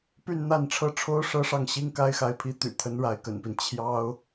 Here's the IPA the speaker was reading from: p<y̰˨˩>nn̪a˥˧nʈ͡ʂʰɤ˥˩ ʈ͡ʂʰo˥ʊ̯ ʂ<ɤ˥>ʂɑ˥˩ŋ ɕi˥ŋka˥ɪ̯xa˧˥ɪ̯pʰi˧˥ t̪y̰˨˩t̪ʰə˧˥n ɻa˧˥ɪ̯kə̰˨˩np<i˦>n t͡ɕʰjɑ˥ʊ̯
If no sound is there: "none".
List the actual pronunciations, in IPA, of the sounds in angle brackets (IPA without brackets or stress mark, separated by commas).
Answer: y˥˧, ɤ˥, i˦